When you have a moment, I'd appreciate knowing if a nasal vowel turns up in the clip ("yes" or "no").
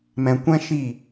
yes